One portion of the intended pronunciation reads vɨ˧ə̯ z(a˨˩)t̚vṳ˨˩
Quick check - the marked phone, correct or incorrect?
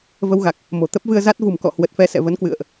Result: incorrect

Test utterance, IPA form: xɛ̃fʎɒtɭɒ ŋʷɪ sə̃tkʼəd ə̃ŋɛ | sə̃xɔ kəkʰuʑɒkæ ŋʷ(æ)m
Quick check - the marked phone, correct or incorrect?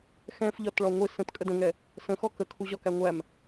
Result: correct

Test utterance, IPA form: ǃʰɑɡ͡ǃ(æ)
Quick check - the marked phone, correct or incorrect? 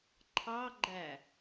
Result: correct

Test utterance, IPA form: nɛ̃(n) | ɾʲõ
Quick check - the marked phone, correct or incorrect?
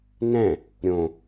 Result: incorrect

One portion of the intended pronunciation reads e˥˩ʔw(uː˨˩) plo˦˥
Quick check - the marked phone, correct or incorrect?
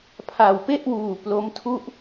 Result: correct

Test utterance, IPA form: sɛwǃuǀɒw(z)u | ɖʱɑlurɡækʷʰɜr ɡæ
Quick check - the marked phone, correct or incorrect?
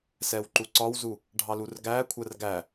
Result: correct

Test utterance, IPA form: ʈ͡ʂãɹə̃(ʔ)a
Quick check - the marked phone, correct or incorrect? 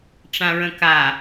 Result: incorrect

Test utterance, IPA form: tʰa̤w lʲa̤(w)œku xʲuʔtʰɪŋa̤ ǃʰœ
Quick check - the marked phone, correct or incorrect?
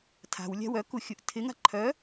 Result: correct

